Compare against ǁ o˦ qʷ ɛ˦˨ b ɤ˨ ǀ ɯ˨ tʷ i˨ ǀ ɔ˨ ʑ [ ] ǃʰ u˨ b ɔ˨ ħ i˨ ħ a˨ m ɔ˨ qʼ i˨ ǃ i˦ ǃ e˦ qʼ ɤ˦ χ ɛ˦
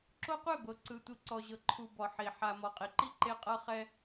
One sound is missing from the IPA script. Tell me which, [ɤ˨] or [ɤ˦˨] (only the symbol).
ɤ˨